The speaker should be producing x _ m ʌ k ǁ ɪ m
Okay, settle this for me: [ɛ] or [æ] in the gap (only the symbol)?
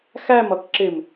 æ